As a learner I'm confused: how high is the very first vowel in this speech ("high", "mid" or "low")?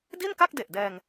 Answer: high